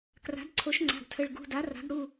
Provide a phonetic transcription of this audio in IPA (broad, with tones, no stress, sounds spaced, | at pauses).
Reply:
k r a̤˩˥ d ǀʰ o˩˥ ʃ ŋ͡ǀ a̤˩˧˩ ɡ tʰ ə˩˧˩ ɭ ɡ ṳ˩˧˩ d a˩˥ r a̤˩˥ ɡ ɽ u˩˧˩